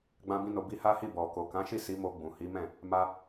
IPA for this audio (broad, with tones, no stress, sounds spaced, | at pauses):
ɡ͡b ã˦ b ĩ˦ n o˧ b i˦ h a˦ h i˦˨ b ɔ˨ k o˨ k ã˨˦ ʃ i˦˨ s i˨˦ m o˧ ɡ͡b ũ˨ h i˨˦ m ɛ̃˦˨ | m a˧